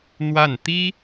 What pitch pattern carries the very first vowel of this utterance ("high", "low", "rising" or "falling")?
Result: falling